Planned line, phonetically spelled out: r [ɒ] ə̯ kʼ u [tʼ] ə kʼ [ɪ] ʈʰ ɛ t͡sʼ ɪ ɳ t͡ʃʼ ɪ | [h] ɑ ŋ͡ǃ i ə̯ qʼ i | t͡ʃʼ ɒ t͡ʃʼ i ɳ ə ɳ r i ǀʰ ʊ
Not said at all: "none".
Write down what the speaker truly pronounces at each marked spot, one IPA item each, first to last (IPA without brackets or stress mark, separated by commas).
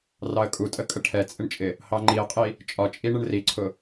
ɑ, tʼ, ə, h